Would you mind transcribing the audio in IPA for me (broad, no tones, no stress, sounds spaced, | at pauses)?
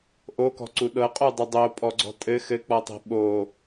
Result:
ʔ o k ɔ̤ ǀ u ɗ ɤ qʼ u dˤ u dˤ o pʼ ɔ ɡ͡ǀ ɔ̤ tʼ ɘ x ɘ k͡p ɔ tˤ e̤ ɓ o